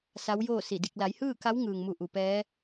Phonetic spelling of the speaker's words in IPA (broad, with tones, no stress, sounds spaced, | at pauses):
s a˧˥ w j oː˥˨ s i˧˩ d i˥˨ k̚ l a˩˧ j h ɯː˥˨ k a˧˥ w ŋ ɯː˩ ŋ m u˧˩ ʔ u˩ p ɛː˧˥